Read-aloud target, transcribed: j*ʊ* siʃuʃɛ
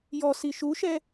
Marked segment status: incorrect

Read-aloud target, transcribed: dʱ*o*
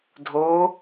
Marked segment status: correct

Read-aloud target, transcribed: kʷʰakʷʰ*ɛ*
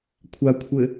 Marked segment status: incorrect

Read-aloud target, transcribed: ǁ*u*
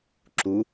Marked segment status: correct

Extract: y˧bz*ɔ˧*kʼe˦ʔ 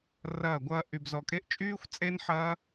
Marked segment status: correct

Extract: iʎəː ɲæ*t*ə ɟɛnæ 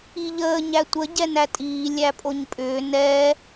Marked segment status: incorrect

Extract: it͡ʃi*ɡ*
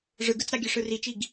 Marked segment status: correct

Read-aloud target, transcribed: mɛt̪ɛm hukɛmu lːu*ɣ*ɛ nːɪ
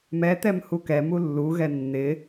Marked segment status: correct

